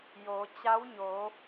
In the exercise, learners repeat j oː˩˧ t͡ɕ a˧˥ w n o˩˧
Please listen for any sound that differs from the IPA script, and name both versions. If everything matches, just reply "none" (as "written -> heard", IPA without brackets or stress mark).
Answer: n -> ɲ